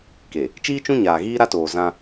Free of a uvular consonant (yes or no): yes